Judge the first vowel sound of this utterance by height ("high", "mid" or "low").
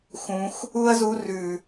high